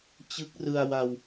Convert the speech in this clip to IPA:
t͡ɕ ɯ˦˥ k̚ r ɯ˧ a̯ w a˧ w

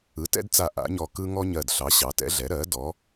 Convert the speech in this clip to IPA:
ɯ˩˥ t ɛ̰˦ d t͡s a˧˩ ʔ a̰˩˥ ɲ ɔ˧˩ k ɯ˦ ŋ ɔ˦ ɲ ɜ˧˩ d ɬ ɑ˩˥ ɕ ɑ˩˥ t ɛ̰˩˥ ɮ ɛ˩˥ ɾ ɜ˩˥ d ɔ˩˥

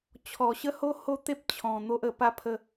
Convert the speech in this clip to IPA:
t͡ɕʰ ɔ˨˩ ɕ ə˦ h o˦ h o˦ t̪ e˦ p̚ t͡ɕʰ ɔ̃˨˩ n̪ o˦ ʔ ə˨˩ p a˥˧ pʰ ə˥˧

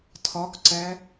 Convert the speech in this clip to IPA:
tʰ ɒ k ǀ æ

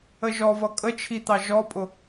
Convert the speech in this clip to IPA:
ə ʒ ɔ v ʌ kʼ ə t͡ʃʰ i t̪ ɑ ʒ ɔ pʼ ʊ

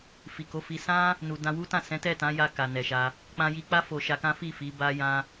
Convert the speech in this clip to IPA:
f i˨ k o˨˦ f i˧ s ã˦ | n u˨ d ã˧ w u˦ t ã˦˨ s ɛ̃˨˦ t ɛ˦˨ t ã˨˦ j a˧ k a˨ n ɛ˨ ʃ a˧ | k͡p ã˧ j i˧ k͡p a˦ f o˧ ʃ a˧ k ã˦ f i˦˨ f i˨˦ b a˦ j ã˦

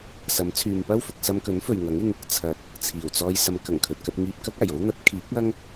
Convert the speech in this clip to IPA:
s ɐ˨˥ m t͡sʰ yː˨ m p ɐ˥ w f ʊ˨ k̚ s ɐ˧ m k ɵ˨˥ n f ɵ˨ ɥ ŋ ɐ˨˥ ŋ ɪ˧ ŋ | t͡sʰ ɐ˨˥ t̚ | t͡sʰ iː˨˩ w t͡s ɔː˧ j s ɐ˨˧ m k ɐ˨˩ ŋ kʰ ɵ˨ t̚ k ɐ˧ t̚ ŋ iː˧ p̚ k ɐ˥ k̚ aː˨˩ j o˥ w n̪ ɐ˨˥ t̚ kʰ iː˨˥ k̚ ɐ˥ ŋ

